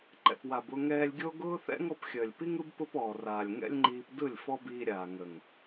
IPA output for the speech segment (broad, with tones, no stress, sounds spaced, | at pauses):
ǃ ɛ̰˨ p w a˨ b ʊ˧ ŋ ɛː˧ lʲ ɡʲ o˦ ɡ ʊː˦ θ ɛ̰˦ ŋ ɔ˧ p xʲ əː˨ lʲ p i˦ ŋ ɯ˦ b p ʊ˦ p ɔː˨ r aː˨ lʲ ŋ ɛ̰˦ lʲ ŋ͡ǃ iː˧ p d ɯ˦˨ lʲ f ɔ˦ b iː˧ ɾʲ aː˨ ŋ ə˨ ŋ